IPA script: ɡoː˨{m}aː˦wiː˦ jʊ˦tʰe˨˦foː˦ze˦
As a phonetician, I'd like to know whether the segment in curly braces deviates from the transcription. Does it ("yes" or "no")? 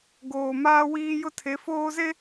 no